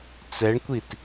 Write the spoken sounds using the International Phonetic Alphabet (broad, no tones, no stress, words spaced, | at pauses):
t͡sɛɳkʷit